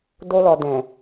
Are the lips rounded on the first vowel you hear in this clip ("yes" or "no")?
yes